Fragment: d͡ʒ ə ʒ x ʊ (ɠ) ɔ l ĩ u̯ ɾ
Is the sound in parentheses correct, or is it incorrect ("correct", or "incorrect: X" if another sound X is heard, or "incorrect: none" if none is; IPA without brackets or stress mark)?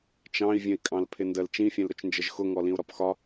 incorrect: ŋ